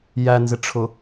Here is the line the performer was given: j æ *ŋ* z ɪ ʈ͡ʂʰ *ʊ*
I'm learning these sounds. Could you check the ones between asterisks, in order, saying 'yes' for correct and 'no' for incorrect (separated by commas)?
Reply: no, yes